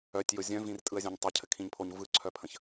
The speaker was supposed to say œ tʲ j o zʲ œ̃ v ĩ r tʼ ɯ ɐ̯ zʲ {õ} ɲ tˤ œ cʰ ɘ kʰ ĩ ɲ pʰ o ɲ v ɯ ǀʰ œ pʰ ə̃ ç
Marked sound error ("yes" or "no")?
no